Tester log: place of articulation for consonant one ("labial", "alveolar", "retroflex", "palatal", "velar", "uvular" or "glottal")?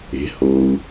glottal